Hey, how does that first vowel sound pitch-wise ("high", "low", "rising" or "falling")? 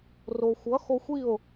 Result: low